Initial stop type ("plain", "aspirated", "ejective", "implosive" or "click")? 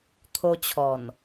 aspirated